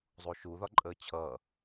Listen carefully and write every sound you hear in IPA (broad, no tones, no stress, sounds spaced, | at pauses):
zˤ u ʃ u ð ɒ ǃʼ əː t͡ɕʰ ʌː